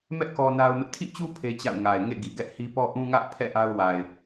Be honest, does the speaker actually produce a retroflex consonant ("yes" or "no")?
no